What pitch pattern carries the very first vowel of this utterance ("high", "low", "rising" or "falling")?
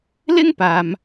high